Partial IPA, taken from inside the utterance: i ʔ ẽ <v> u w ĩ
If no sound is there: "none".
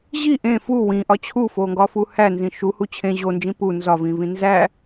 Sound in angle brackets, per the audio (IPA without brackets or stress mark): f